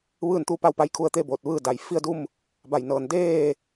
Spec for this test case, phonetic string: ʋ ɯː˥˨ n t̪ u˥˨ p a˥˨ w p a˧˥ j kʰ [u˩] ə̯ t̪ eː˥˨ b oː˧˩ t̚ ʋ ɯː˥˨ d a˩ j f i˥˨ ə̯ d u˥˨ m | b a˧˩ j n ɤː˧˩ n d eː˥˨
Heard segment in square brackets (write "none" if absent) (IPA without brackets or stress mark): u˧